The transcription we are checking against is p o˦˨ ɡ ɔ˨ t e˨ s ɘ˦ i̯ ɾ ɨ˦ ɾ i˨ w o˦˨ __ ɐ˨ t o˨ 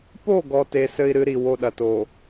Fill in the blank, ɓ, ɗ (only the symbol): ɗ